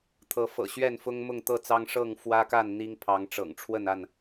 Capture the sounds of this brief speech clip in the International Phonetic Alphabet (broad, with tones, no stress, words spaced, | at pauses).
t̪ʰɤ˨˦fɤ̰˨˩ ɕɥɛ˥˨nfʊ˦ŋ mʊ˥˨ŋt̪ɤ˥˨t͡sɑ˦ŋ ʂɤ˥˨ŋfwä˦ka˥˨n n̪i˦ŋpʰɑ˨˦ŋ ʈ͡ʂɤ̰˨˩ŋʈ͡ʂʰwə˥˨na˥˨n